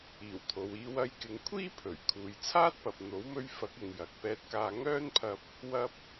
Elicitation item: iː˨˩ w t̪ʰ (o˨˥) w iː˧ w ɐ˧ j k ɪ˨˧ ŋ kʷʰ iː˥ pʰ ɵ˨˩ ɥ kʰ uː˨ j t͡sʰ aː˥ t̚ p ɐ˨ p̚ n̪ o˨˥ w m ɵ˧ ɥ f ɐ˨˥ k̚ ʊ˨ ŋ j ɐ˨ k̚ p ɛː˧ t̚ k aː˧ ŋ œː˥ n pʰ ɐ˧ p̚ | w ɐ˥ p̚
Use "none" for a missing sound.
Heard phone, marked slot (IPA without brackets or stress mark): o˨